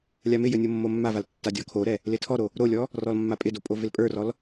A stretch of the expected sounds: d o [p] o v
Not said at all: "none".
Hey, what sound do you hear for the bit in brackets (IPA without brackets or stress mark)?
pʼ